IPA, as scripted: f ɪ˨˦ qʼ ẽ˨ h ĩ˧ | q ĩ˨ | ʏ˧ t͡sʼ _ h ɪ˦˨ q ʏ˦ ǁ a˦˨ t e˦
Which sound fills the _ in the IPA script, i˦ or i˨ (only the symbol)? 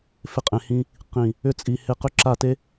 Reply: i˨